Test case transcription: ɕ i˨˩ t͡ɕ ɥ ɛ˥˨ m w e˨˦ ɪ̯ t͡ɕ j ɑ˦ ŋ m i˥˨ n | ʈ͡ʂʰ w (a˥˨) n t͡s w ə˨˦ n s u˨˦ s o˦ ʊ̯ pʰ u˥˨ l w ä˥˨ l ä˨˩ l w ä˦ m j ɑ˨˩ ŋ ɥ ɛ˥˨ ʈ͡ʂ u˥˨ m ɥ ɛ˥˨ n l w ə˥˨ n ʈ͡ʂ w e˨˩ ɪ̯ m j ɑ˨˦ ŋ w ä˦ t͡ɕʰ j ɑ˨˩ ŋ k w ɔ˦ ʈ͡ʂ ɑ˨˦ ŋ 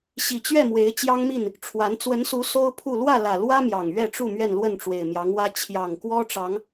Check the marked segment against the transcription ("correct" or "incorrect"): incorrect